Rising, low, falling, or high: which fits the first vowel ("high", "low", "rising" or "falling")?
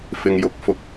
low